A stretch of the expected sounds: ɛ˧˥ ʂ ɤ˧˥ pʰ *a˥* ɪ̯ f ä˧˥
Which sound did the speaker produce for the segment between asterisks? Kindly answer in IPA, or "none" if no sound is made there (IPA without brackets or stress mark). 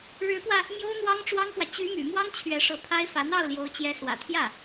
a˥